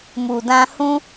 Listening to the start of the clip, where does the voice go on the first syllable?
low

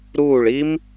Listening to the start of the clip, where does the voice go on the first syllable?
falling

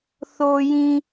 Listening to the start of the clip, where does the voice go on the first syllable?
low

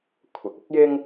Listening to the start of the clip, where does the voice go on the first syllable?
low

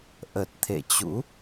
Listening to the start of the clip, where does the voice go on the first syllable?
low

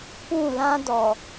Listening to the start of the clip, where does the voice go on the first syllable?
falling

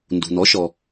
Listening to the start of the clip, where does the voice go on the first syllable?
low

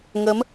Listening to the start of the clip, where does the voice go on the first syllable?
rising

